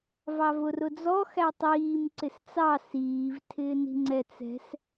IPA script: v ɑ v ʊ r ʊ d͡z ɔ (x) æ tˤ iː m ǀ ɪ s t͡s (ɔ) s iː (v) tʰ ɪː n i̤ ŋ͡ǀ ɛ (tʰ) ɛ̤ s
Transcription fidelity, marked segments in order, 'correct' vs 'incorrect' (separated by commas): correct, incorrect, correct, incorrect